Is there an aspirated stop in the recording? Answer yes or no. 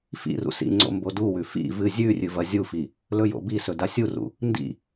no